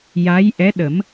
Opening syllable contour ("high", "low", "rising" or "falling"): rising